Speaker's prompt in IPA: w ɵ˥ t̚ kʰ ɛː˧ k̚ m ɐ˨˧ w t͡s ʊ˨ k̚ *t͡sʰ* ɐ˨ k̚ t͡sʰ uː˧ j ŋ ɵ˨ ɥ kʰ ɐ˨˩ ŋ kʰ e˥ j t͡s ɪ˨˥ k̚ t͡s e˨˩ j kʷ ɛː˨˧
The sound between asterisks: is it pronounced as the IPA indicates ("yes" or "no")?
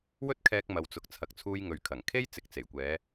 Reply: yes